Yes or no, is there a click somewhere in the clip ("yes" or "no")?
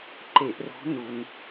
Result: yes